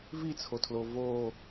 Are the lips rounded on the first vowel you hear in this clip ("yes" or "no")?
no